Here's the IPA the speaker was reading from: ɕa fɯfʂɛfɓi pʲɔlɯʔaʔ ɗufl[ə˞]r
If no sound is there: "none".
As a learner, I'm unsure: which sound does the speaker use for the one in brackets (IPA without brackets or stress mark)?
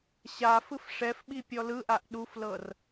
ɤ